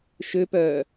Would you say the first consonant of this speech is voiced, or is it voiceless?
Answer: voiceless